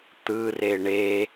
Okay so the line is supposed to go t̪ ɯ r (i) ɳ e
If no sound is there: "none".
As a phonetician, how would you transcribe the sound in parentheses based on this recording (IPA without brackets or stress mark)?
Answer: e